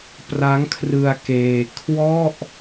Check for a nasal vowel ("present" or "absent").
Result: absent